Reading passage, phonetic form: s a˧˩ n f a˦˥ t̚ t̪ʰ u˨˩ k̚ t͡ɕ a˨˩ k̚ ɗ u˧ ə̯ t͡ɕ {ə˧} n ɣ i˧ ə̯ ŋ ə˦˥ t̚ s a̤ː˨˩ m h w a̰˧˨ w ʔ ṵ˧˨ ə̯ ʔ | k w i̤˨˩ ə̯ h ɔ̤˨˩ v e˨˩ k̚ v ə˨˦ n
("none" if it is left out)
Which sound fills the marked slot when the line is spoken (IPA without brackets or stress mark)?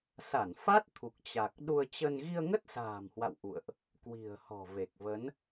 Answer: ə˧